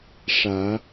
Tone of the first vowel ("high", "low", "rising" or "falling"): rising